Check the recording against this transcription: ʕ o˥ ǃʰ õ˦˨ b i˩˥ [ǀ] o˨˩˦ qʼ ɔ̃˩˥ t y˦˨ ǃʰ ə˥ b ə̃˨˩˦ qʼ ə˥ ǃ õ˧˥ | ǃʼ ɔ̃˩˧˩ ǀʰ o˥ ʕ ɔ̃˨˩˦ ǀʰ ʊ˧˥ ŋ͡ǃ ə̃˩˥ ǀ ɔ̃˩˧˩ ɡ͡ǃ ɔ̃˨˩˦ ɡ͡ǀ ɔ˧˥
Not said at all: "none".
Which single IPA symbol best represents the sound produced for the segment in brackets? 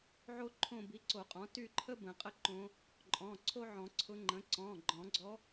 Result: ǀ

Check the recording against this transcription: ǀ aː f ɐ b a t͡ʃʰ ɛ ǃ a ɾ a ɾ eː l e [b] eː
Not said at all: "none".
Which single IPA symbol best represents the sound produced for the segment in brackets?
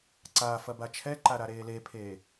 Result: pʰ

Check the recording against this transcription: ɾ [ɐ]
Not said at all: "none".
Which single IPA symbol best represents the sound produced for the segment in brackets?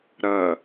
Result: ɐ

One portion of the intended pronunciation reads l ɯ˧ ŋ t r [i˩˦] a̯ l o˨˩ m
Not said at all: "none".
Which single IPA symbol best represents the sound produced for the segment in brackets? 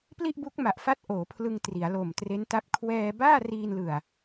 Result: i˩˦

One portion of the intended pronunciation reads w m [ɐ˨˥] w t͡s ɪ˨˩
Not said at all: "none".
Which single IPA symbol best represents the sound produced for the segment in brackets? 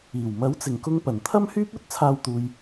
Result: ɐ˨˥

